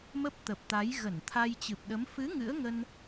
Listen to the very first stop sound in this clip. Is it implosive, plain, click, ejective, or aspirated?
plain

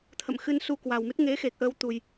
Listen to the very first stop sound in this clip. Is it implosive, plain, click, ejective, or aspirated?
aspirated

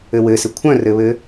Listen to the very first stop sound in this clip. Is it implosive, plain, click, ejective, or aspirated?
aspirated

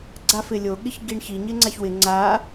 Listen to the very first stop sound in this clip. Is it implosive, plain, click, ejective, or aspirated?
click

